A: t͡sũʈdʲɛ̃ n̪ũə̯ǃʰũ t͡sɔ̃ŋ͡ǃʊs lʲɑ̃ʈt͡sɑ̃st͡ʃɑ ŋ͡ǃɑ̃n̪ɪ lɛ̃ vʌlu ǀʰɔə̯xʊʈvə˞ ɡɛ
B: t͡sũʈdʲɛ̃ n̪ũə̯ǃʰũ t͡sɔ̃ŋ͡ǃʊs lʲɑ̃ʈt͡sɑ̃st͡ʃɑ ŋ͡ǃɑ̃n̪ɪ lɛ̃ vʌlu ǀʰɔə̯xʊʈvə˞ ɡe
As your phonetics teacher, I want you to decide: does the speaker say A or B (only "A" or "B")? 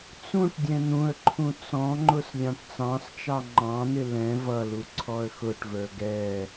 A